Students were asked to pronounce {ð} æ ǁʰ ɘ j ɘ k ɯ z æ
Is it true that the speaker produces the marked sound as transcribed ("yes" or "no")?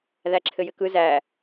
yes